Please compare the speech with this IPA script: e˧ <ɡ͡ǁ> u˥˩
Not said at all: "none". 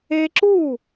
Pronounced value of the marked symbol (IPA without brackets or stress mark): ǁ